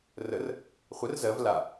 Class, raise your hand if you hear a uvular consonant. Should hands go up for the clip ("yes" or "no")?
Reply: yes